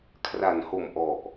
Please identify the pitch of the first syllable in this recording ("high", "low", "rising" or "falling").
low